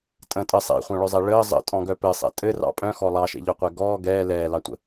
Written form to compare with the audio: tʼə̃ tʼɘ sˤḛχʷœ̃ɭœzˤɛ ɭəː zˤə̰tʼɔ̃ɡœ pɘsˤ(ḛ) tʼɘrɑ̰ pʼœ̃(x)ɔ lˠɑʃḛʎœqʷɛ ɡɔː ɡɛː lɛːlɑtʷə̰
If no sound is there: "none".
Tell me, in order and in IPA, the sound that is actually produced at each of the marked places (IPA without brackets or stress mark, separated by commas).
ɛ̰, x